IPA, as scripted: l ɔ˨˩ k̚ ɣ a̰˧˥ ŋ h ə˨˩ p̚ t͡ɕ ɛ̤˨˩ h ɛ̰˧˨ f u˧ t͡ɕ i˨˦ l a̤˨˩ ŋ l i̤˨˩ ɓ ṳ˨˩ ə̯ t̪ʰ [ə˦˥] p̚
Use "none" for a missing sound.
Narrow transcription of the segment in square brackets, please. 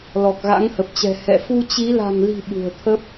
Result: ə˦˥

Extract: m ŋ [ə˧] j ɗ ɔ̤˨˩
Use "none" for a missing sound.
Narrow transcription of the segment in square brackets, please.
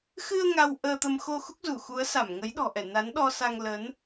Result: ə˨˦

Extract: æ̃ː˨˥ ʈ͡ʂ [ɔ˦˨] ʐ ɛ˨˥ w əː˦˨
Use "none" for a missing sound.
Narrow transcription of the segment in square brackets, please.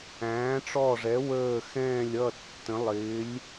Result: ɔ˦˨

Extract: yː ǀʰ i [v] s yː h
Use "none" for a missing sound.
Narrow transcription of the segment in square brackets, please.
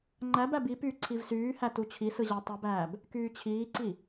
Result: v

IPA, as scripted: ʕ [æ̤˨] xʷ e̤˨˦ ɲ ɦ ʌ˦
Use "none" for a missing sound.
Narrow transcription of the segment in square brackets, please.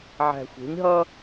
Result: æ̤˨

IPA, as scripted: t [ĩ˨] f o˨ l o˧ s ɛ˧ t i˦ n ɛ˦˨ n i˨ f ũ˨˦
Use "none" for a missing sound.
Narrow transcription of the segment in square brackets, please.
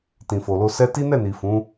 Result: ĩ˨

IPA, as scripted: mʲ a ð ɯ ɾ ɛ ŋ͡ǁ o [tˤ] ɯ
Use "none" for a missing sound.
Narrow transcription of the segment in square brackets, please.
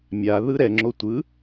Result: tʷ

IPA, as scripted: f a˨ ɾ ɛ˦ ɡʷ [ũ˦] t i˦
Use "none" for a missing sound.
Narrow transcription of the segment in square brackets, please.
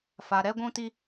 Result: ũ˦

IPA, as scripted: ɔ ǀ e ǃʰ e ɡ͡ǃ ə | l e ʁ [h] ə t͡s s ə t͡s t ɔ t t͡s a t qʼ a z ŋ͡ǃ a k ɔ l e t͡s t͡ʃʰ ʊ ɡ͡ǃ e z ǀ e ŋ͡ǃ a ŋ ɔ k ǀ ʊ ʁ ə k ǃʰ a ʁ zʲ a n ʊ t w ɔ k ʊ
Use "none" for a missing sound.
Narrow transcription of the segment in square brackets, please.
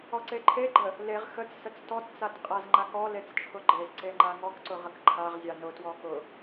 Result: x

